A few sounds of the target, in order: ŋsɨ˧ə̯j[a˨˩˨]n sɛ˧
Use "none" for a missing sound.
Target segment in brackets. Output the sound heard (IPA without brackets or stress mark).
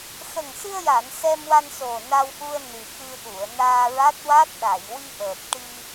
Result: a˨˩˨